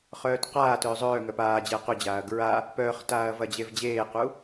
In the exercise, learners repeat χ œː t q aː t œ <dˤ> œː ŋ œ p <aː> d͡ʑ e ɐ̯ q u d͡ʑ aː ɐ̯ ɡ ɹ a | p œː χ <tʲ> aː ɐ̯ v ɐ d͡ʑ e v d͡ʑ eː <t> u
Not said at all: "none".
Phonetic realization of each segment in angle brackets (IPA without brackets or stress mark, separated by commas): zˤ, aː, t, q